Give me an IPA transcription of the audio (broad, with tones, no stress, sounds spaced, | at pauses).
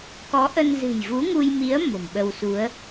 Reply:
k ɔ˨˦ ʔ ə˧ n z ɨ̤˨˩ j v u˨˦ ŋ u˧ j m i˨˦ ə̯ m o̤˨˩ m ɓ ə˧ w s u˨˦ ə̯